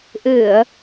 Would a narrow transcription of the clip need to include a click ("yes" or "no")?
no